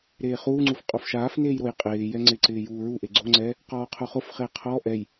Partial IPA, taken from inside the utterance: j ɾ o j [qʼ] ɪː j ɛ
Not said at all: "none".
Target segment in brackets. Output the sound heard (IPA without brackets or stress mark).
qʼ